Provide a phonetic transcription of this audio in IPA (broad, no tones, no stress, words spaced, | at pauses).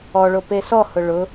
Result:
ɔɭope sɔhʊ ɭʊ